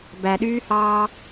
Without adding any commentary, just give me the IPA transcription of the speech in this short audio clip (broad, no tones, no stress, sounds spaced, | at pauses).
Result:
b æ ɗ yː h ɑː